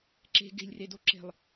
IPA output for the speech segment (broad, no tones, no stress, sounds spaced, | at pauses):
ǁ e̤ ɡ e̤ lʲ r e d o ǁ e̤ lˠ